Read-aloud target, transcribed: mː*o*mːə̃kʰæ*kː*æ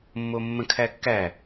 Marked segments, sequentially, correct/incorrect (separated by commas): correct, correct